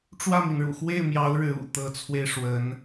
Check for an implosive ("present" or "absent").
absent